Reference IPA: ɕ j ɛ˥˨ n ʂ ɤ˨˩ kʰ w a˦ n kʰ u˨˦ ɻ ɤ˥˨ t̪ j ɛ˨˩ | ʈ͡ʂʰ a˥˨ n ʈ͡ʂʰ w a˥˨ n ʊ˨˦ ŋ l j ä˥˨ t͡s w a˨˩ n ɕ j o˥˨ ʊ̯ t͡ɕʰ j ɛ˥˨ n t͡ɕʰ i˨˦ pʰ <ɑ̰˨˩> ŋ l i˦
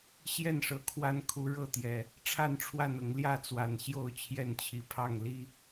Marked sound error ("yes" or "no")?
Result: yes